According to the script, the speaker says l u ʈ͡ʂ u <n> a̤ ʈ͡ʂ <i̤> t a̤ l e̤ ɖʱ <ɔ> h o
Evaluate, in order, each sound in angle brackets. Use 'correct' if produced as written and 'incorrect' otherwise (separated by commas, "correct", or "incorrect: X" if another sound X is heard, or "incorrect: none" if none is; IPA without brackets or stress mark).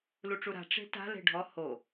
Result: incorrect: ɾ, incorrect: e̤, correct